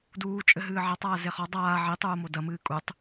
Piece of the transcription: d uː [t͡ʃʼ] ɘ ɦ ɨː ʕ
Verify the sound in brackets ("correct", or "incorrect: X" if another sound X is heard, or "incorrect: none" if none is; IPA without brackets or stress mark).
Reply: correct